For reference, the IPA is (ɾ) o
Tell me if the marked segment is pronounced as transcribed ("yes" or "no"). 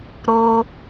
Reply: yes